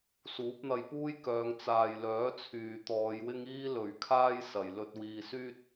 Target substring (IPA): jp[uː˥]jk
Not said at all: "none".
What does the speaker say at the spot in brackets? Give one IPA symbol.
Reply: uː˥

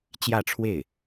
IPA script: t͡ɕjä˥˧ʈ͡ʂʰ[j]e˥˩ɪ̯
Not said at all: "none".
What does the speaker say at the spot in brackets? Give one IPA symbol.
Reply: w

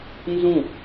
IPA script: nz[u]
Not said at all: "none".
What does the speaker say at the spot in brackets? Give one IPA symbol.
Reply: ũ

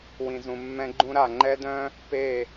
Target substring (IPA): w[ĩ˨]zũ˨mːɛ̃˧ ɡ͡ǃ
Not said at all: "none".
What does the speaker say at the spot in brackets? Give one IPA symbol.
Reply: ĩ˨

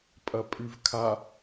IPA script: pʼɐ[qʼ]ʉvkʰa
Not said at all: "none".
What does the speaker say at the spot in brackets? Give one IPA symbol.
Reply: pʼ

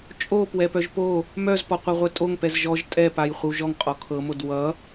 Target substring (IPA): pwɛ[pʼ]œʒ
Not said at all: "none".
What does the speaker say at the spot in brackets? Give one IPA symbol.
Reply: p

